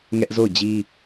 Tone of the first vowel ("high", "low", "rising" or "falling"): high